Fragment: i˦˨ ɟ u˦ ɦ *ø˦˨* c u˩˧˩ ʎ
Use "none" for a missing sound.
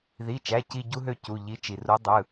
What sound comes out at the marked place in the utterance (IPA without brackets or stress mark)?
ø˦˨